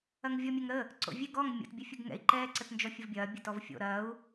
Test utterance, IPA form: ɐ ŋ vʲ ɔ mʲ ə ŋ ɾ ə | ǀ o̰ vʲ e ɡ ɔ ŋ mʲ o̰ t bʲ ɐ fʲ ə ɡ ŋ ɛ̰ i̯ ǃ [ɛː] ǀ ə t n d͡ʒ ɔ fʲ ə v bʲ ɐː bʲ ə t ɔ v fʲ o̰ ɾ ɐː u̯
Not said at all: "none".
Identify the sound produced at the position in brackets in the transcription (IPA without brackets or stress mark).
ɛː